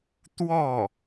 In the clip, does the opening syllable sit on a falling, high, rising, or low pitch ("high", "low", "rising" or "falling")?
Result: falling